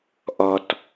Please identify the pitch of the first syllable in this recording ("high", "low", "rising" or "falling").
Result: low